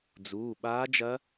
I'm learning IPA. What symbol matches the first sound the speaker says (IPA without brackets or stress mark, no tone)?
d͡z